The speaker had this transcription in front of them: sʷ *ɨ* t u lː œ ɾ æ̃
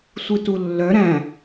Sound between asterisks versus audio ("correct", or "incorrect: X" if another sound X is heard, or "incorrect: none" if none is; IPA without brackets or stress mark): correct